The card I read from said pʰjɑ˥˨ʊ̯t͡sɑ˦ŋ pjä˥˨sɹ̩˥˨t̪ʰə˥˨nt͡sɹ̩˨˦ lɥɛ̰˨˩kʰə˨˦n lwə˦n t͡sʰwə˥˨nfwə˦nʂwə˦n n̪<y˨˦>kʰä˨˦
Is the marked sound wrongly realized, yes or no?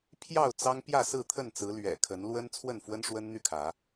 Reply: yes